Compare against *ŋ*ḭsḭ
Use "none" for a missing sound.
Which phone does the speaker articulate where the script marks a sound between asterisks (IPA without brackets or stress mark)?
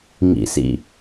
ŋ